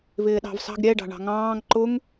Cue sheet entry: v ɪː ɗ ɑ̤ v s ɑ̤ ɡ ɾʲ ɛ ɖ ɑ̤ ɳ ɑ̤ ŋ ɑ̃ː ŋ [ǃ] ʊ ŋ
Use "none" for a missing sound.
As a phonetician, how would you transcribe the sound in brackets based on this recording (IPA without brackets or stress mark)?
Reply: ǃ